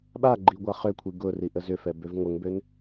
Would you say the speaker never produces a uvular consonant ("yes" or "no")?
no